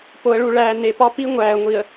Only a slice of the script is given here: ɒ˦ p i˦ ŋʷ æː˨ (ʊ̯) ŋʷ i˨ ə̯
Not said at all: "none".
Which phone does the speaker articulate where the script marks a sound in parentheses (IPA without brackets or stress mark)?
ə̯